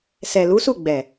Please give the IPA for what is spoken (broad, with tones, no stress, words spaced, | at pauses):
sɛ˨lu˨˦su˦˨ɡ͡bɛ˨